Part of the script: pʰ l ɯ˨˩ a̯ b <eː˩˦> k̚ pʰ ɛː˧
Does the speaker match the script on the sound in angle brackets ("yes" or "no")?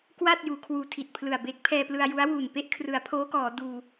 no